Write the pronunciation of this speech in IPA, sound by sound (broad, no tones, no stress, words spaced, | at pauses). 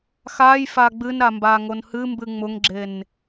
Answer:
xaj faɡ͡bɨnɾa mbaŋonhɨmbɨ ŋ͡mʊŋɡ͡ǁen